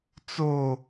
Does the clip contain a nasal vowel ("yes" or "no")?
no